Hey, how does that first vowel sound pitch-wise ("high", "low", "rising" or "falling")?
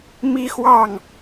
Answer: high